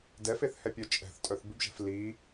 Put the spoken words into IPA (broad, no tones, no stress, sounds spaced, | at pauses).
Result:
d ɛ f e θ h ɛ pʲ œ t͡ʃʼ ɛ̤ θ tʼ œ θ b ɪ b ʒ ɛ̤ f l i